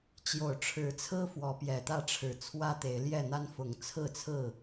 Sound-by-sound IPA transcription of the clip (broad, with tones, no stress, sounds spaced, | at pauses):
t͡ɕ j o˨˩ ʊ̯ ʈ͡ʂʰ ɻ̩˨˦ t͡sʰ ɹ̩˦ f w ɔ˨˦ p j ɛ˨˩ t̪ ä˥˨ ʈ͡ʂʰ ɻ̩˨˩ t͡sʰ w ä˦ t̪ e˨˦ ɪ̯ l j ɛ˥˨ n̪ a˦ n f ʊ˨˦ ŋ t͡sʰ ɹ̩˥˨ t͡sʰ ɹ̩˥˨